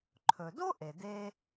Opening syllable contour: low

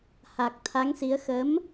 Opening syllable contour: low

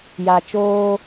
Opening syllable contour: low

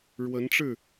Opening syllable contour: rising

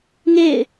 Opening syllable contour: falling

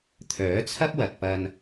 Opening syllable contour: rising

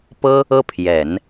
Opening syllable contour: high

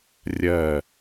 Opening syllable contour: falling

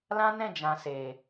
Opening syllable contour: high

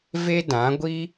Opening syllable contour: high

